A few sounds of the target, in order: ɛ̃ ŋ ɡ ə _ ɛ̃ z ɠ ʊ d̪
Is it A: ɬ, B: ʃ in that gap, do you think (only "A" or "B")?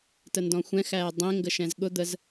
B